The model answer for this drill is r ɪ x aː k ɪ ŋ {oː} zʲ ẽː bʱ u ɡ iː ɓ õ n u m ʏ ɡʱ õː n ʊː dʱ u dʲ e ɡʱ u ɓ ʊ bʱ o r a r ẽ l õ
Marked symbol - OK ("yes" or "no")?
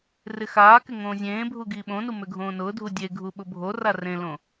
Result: no